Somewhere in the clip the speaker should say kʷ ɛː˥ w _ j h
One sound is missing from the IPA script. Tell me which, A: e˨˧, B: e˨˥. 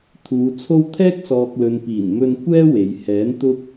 A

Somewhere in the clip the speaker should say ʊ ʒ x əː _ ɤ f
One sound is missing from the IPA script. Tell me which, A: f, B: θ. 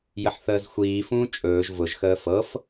A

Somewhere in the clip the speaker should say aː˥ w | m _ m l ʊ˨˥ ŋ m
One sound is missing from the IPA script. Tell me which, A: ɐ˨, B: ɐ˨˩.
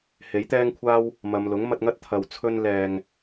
A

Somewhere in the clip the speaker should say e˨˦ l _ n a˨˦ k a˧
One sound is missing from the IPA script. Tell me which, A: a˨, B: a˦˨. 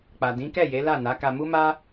B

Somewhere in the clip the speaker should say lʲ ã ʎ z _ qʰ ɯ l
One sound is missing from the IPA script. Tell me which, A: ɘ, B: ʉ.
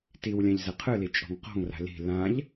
A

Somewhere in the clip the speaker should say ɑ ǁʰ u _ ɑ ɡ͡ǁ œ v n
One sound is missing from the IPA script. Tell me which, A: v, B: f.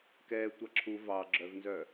A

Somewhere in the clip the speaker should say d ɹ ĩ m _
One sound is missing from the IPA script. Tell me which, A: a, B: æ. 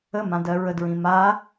A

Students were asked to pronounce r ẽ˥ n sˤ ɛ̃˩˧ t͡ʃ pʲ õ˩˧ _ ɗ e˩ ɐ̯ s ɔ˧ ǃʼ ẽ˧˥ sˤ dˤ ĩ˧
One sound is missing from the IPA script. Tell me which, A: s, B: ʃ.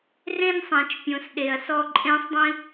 A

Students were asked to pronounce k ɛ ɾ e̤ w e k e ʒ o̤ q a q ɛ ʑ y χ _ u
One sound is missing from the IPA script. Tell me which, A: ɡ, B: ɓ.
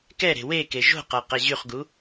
A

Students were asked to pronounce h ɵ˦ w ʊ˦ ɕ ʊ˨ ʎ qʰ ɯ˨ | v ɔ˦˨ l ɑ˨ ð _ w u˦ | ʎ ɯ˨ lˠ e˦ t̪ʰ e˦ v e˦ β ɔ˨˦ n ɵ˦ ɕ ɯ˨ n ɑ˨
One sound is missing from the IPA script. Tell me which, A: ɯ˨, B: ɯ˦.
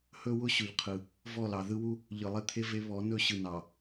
B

